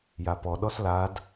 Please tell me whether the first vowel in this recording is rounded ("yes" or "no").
no